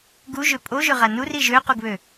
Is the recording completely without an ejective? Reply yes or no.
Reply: no